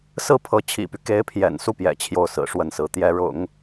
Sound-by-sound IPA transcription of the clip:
sɹ̩˥˩pʰɤ˧˥ t͡ɕʰḭ˨˩py˦ke˧˥ɪ̯pʰjɛ̰˨˩n su˥˩pjɛ̰˨˩ t͡ɕʰjo˥˩ʊ̯sɹ̩˨˩ʂwə˥˩nsɹ̩˧˥ t̪jɛ˧˥ɻʊ̰˨˩˦ŋ

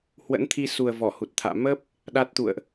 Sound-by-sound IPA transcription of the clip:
hwə̰˧˥nt̪ʰi˧su˨˩ə̯ vɔ˧˩hu˨˩t̚t̪ʰa̰ː˧˨ mə˦˥p̚ | ɗa˦˥t̚t̪ṵ˧˨ə̯ʔ

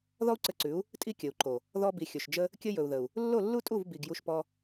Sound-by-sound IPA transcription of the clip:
ðɔ˦u̯ǀɘ˧ǀʉ˨˦u̯ | tʼi˦kʲɘ˨u̯ǃo˨ | ðɔ˧bi˨ xʲɵ˨ʃd͡ʒə˦ | kʲɘ˦jɵ˨u̯ðə˨u̯ | lːo˦˨lːu˦tʼu˦˨v bi˨ɡ ju˧ʃpɔ˧

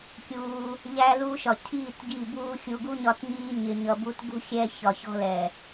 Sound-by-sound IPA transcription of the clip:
kʲuː˧ | ʎæ˦ luː˦ʃɒ˨ cʰiː˦˨t ɟiː˦˨buː˦ xʲu˧ ɡu˦ɲɒ˧tɲiː˧ ɲɪ˨ɲʌ˨bu˧t ɡṳ˦xʲɛ˧ çɒ˨çɔ̤˦lɛ˨

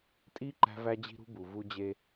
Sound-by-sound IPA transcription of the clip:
tʼi˦ ǃæ̤˦væ˦d͡ʑi̤˦ɾṳ˦ bu˨vu˦d͡ʑe˦

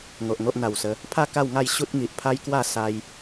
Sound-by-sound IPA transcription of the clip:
ŋo˨ʔŋo˦ʔn̪a˨˩wsə˨˦ | pʰa˥˧ ka˥˧wŋa˥˧jɕu˦t̚ ŋi˨ʔpʰa˦jkwa˥˧ sa˦j

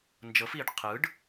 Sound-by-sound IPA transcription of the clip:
nd͡ʒɤf iɖ qʰɯɖ

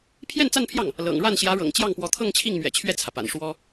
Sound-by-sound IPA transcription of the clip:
pʰjɛ˥˧nt͡sa˥˧npʰjɑ˥˩ŋ | lɤ̰˨˩ŋɻa˥˩n ɕjä˧˥ɻɤ̰˨˩ŋt͡ɕjɑ˥˩ŋpwɔ˧˥ t̪ʰɤ˥˧ŋt͡ɕʰi˥˩ŋmɥɛ̰˨˩ t͡ɕʰɥɛ˥˩t͡sʰä˩pa̰˨˩n ʂwɔ˥

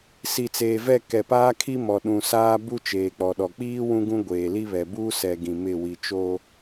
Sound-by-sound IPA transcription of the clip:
si˨t͡seː˨vɛ˦˨ kɛ˨paː˦kʰi˦mɔ˨ ɗũ˨saː˦ bu˦t͡ʃeː˨k͡pɔ˨ɗɔ˨ k͡piː˦ wũ˦ɡũ˦ ɡʷeː˨li˦βɛ˨ buː˦sɛ˨ ɡĩ˨ mɪ˦˨ wi˨t͡ʃo˦

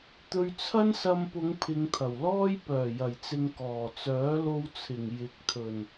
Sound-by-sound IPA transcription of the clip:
t̪ɵ˧ɥt͡sʰɐ˥nsɐ˧mpʊ˨˧ŋ pʰɪ˨˧ŋt̪ʰɐ˨˩wlɔː˥j pœː˨˩jɐ˨˩jt͡sɪ˨ŋ kɔː˨˩t͡sœː˨˥lo˧wt͡sʰɪ˨˩ŋ jɪ˨k̚t̪ʰɵ˨˩n

